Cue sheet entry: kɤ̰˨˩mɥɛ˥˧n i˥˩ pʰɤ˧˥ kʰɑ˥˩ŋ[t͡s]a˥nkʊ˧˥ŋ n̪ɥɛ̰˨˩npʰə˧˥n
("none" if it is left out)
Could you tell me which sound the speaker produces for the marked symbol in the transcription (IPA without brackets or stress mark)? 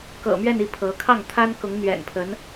t̪ʰ